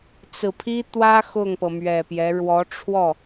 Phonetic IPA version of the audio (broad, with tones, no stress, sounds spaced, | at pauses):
t͡s ɹ̩˨˩ pʰ i˥ t̪ w ä˥ x ʊ˥˩ ŋ p ɤ˩ m ɥ ɛ˨˩ p j ɛ˧˥ ɻ w ɔ˧˥ ʈ͡ʂʰ w ɔ˥˩